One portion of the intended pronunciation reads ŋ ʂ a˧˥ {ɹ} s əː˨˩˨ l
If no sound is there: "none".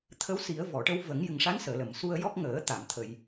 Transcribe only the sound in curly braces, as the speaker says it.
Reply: n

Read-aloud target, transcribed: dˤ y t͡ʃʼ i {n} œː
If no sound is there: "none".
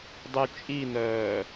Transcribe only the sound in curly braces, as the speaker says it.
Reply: n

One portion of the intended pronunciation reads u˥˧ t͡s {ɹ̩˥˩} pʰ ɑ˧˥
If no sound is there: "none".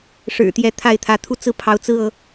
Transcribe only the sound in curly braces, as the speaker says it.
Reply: ɹ̩˥˩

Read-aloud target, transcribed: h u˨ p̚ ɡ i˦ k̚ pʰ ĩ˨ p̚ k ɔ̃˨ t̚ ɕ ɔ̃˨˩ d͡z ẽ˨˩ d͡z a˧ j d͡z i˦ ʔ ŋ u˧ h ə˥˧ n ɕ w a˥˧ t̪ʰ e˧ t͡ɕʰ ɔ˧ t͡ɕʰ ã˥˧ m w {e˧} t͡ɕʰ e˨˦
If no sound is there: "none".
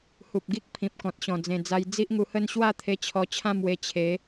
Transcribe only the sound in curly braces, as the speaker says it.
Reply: e˧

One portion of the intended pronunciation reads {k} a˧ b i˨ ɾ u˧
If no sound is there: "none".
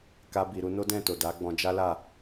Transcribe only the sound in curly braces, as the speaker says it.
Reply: k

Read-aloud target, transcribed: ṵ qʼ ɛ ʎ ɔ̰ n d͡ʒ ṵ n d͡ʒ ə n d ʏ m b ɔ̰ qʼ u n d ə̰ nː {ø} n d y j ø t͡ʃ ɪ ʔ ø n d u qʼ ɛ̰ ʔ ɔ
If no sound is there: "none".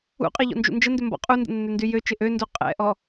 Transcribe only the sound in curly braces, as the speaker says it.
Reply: ø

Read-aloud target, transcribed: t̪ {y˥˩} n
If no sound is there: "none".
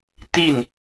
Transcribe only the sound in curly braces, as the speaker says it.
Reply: i˥˩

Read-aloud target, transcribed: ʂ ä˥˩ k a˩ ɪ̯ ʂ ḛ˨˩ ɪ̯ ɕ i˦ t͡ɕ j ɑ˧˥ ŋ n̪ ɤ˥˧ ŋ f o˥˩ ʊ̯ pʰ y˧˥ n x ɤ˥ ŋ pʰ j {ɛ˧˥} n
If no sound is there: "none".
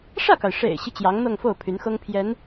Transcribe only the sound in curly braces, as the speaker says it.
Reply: ɛ˧˥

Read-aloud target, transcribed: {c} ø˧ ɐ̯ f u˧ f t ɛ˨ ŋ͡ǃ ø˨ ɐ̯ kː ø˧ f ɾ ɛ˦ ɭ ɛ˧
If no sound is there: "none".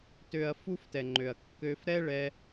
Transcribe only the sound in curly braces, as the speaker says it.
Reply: t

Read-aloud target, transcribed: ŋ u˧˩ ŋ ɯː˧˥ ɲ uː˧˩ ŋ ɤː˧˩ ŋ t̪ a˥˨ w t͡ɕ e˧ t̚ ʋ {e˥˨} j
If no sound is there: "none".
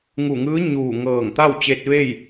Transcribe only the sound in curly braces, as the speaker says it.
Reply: e˥˨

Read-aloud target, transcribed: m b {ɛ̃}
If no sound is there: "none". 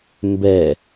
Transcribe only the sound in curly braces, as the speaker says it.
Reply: ɛ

